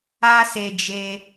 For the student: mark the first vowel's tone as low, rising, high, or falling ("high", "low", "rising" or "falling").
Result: high